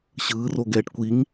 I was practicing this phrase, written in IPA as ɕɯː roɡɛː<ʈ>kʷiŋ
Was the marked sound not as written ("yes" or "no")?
no